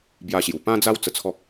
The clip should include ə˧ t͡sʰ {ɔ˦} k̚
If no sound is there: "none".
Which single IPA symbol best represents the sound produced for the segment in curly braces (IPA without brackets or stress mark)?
ɔ˦